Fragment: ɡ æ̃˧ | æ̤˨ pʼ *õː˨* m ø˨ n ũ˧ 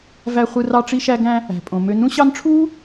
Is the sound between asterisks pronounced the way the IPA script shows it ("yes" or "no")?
no